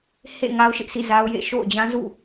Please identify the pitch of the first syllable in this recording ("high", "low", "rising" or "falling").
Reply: falling